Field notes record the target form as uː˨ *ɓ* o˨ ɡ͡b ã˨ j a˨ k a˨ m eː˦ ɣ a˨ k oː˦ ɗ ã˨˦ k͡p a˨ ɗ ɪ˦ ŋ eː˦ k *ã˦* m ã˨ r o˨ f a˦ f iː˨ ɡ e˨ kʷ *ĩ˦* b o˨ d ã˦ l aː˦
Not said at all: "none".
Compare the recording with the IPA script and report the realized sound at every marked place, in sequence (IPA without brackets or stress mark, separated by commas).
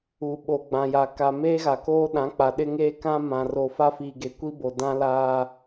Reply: ɓ, ã˦, i˦